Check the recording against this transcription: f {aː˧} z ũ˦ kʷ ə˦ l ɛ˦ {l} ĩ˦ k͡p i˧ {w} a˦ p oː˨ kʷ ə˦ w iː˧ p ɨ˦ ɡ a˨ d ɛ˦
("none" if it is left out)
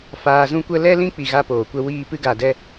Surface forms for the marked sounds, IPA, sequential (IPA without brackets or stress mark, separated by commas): aː˧, l, ɣ